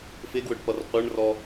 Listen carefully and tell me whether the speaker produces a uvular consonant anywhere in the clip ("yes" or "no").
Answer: yes